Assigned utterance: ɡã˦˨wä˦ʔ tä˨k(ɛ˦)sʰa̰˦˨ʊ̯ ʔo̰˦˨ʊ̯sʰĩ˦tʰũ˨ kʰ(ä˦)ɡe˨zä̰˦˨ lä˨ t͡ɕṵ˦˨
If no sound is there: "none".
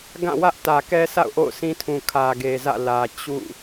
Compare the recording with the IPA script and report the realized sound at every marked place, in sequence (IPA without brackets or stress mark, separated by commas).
ɛ˦, ä˨